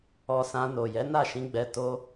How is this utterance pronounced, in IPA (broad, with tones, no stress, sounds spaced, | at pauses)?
ɔ˧ s ã˧ n o˨ j ɛ˨˦ n a˦˨ ʃ ĩ˧ ɡ͡b ɛ˧ t o˦